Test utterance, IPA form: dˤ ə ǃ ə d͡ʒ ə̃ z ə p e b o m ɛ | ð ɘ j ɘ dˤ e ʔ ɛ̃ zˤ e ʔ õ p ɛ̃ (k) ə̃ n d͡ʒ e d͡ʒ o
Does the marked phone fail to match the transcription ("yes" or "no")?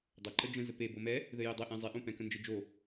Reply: no